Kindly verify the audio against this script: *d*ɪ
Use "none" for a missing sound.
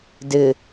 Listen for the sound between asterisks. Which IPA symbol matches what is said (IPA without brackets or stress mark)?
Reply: d